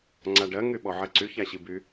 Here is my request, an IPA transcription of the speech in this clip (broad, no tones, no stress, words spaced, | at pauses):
ŋ͡ǀaɖɜ ŋyɓɔʕɜǀy çaɕiby